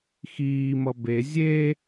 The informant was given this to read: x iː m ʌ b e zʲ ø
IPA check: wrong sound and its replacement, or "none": ø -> e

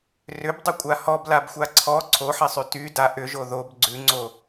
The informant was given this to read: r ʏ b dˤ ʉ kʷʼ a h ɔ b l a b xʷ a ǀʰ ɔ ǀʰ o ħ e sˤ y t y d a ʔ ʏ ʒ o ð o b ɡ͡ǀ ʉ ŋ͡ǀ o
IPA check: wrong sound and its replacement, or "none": none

